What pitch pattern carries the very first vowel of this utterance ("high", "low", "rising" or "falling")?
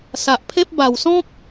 low